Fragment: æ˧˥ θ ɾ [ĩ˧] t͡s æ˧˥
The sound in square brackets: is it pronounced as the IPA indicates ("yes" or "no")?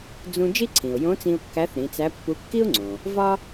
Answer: no